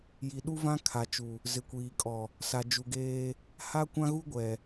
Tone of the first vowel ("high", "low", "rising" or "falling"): low